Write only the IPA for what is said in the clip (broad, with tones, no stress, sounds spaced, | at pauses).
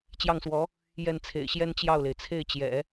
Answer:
t͡ɕ j ɑ˥˩ ŋ s w ɔ˧˥ | j ɛ˥˩ n t͡sʰ ḛ˨˩ ɪ̯ ɕ j ɛ˥ n t͡ɕ j ɑ˥˩ ʊ̯ l e˩ ɪ̯ t͡sʰ e˥˩ ɪ̯ t͡ɕ j ɛ̰˨˩˦